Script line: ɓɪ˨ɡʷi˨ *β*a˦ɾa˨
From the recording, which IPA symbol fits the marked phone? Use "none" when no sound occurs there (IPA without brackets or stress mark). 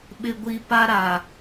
p